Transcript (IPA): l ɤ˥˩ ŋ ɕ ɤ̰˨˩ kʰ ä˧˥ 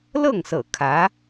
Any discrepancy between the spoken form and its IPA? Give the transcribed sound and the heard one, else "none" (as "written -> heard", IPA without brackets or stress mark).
ɕ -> s